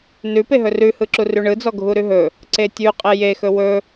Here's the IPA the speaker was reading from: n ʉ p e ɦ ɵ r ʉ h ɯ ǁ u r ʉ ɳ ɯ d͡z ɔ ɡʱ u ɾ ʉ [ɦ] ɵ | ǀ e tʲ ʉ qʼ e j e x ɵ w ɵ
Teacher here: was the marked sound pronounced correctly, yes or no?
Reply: yes